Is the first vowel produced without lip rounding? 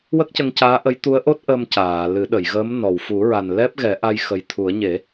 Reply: yes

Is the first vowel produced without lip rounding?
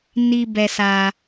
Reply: yes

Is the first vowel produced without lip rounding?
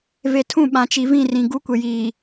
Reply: yes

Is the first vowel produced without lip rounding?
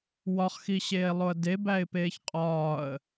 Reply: no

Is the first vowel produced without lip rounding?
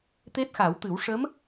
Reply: yes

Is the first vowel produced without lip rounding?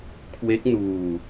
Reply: yes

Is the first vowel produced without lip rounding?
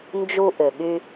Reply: no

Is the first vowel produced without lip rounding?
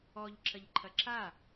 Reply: no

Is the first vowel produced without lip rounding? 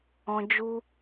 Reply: no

